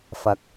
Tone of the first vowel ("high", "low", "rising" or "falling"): rising